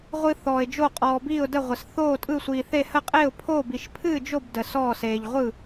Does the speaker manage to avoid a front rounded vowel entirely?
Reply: yes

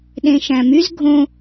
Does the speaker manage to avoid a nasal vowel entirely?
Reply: no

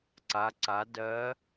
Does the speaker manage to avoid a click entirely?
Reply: no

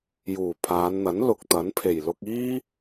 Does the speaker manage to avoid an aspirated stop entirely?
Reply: no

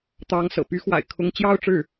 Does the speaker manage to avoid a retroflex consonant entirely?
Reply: no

